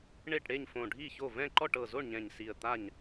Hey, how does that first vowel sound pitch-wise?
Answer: falling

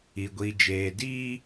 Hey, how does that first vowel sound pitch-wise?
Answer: low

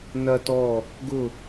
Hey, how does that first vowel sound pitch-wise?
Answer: high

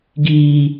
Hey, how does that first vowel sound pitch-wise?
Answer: high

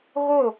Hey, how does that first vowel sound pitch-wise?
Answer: falling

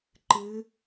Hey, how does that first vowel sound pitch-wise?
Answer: rising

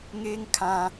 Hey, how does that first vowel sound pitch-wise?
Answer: high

